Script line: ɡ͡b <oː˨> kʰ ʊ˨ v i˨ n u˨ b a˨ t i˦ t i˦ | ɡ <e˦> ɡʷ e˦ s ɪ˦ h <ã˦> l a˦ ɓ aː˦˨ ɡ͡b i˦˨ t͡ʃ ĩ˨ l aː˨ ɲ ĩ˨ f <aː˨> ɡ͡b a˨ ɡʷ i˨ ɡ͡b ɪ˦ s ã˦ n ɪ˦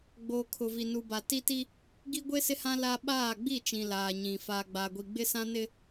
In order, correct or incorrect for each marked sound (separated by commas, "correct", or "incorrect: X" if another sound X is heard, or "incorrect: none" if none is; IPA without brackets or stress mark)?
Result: correct, incorrect: i˦, correct, correct